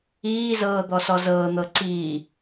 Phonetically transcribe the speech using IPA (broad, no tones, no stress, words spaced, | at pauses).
iːzɤː d̪ɔsɔzɤːn̪ɤ ǀiː